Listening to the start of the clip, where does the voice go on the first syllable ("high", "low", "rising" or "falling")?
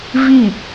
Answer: falling